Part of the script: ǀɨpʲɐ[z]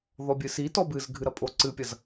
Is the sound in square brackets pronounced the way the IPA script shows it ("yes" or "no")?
yes